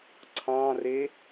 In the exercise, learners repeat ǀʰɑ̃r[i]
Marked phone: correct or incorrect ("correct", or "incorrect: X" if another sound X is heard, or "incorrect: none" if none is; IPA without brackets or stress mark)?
incorrect: e